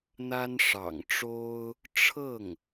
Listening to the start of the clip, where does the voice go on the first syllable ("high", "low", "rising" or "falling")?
high